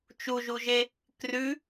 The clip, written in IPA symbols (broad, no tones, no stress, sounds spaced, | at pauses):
t͡ʃ u ʒ u ʒ e | k r ʉ